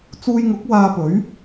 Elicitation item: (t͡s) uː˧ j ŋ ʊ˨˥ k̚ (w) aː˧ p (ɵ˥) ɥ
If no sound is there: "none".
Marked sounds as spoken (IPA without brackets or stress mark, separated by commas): t͡s, w, ɵ˨˥